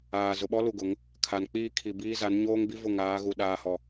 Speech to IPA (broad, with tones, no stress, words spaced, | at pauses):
aː˨ zʊ˨ɓɔ˦lu˨ ɡʊ˨˦ŋ | kʰa˨nk͡piː˦ kʰi˨biː˦ za˨˦nɲoː˦ŋbi˦ vʊ˦˨ŋaː˨˦ɣu˨ ɗaː˨hɔ˨